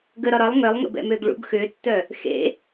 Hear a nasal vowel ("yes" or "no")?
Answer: no